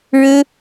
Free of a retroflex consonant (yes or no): no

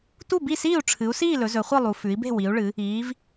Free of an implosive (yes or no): yes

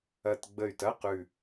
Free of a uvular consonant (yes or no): no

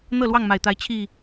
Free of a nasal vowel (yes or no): yes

